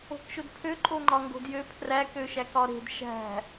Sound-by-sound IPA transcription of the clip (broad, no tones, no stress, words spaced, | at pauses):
o̤kʃʊdpʰø ǃʼoŋ͡ǃɒŋɡo̤djø pʰræk øʃækɒɾe̤d ʃæ̤